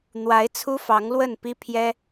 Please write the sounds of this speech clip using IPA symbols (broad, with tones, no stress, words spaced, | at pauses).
n̪wa˧˥ɪ̯t͡sʰu˥ fɑ˧˥ŋlwə˥˩npi˥ pʰjɛ˥